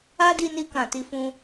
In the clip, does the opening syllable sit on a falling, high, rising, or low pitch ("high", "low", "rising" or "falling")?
high